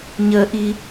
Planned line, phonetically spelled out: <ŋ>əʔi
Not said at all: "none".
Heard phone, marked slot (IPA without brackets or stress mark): ɲ